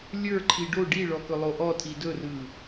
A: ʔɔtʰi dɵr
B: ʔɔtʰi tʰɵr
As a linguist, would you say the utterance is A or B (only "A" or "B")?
A